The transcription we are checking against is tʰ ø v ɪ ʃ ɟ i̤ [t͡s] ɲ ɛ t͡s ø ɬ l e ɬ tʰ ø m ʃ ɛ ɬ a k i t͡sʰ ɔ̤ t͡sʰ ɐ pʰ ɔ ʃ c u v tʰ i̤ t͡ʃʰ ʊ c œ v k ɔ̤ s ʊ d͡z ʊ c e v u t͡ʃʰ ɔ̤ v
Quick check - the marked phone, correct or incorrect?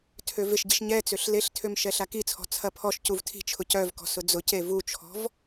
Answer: incorrect